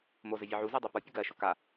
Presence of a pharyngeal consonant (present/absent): present